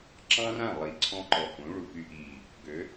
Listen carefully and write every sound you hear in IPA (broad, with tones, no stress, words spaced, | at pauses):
ǁɑ̃˦rã˦˨ lˠi˨ǀʰɔ̃˧ǃɔ˨ hũ˨˦ ɭu˨py˧ʔiː˨ | ɡø˨˦